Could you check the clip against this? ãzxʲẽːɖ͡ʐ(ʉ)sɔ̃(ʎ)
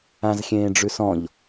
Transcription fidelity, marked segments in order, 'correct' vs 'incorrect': correct, correct

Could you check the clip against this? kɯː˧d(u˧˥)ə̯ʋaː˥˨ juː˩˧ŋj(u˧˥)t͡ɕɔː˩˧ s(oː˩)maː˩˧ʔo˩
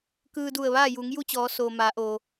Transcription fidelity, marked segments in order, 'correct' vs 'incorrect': incorrect: u˧˩, incorrect: u˥˨, correct

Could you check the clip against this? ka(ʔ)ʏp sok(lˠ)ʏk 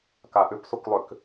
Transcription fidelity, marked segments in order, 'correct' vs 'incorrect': correct, correct

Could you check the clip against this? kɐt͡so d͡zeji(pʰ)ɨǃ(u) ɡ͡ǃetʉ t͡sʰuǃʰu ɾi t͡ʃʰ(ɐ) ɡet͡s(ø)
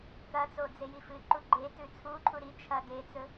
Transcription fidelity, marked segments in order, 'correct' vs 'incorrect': incorrect: f, correct, correct, incorrect: ɵ

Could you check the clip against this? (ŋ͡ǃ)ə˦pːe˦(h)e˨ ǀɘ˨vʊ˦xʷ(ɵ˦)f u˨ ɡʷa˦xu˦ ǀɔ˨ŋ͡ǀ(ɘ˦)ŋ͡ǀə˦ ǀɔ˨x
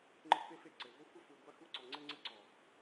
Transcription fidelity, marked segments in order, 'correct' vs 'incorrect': correct, incorrect: f, incorrect: ə˦, correct

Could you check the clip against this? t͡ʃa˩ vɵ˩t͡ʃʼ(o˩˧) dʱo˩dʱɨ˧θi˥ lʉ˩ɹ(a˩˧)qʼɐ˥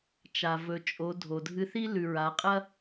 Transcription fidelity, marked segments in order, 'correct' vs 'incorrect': correct, correct

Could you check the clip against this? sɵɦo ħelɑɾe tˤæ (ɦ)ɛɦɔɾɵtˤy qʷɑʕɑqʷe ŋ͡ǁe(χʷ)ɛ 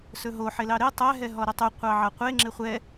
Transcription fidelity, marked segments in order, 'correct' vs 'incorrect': correct, correct

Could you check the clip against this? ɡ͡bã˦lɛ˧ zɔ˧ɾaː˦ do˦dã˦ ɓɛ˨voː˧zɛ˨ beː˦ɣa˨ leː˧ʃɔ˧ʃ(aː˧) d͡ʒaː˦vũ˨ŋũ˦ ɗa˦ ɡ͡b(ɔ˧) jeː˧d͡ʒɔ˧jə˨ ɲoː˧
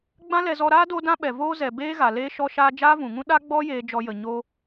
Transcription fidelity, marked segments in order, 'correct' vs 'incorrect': correct, incorrect: ɔ˦

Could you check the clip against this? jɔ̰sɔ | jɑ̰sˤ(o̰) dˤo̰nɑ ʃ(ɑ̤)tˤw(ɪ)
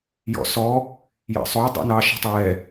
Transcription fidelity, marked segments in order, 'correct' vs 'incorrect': incorrect: o, correct, incorrect: ɛ

